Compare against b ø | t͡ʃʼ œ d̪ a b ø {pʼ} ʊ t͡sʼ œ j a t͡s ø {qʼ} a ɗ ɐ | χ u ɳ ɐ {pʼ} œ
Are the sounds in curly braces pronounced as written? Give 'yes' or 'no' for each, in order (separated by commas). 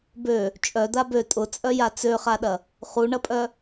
no, no, yes